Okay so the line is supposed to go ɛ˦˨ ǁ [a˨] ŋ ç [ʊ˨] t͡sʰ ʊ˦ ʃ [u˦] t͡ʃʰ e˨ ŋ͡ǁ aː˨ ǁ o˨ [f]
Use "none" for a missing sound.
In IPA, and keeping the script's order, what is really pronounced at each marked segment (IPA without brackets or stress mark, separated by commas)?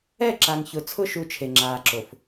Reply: a˨, ʊ˨, u˦, f